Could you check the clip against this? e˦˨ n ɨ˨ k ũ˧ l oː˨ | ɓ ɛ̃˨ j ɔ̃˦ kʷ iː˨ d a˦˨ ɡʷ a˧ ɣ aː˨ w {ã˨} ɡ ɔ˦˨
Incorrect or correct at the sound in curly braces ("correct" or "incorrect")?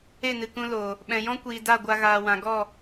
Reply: correct